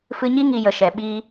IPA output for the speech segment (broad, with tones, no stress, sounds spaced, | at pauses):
f ɨ˧ ɲ i˦ ŋ i˧ j ə˨ ʃ ɛ˨ ɓ iː˧